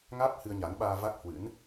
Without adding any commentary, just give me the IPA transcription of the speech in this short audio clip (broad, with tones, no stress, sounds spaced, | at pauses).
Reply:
ŋ aː˦˥ p̚ h ɨ˧ ə̯ ɲ a˨˦ n ɓ aː˧ v a˦˥ k̚ h w ɨ̰˧˥ n